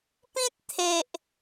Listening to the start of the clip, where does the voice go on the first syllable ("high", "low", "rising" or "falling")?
high